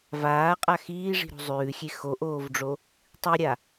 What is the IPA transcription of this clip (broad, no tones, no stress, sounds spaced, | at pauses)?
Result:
v aː qʼ a x iː ʐ i̤ ɾ o̤ zˤ ʉː xʲ e x o ʔ oː v ɖ͡ʐ o | tˤ i ɾʲ a